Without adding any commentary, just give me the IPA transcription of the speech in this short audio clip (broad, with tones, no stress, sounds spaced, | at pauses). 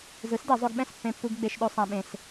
z ɯ˨˥ s d e˨˩˦ zˤ o˧ ɡ ɓ ɛ̃˥˩ s pː ẽ˧ pː u˧ ɡ ɡ͡b e˧ ʃ ɗ o˧ sˤ ã˧ ɓ ẽ˧ s